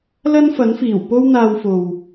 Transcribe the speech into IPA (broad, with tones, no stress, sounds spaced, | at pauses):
l ɐ˥ n f ɐ˨˥ n f iː˨˩ w p o˥ w n̪ aː˧ w f o˨ w